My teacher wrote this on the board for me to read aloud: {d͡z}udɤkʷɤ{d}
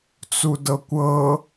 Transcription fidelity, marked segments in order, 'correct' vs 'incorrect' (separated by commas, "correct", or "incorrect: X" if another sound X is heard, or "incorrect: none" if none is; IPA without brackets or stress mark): incorrect: t͡s, incorrect: none